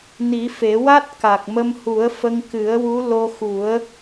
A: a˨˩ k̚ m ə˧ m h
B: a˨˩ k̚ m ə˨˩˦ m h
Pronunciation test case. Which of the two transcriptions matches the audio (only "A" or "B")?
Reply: A